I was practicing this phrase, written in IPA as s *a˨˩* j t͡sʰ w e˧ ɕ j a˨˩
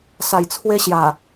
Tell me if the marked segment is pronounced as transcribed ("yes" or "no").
yes